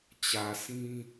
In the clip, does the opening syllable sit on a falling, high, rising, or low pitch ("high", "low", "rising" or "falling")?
low